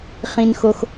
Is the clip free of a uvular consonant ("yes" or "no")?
no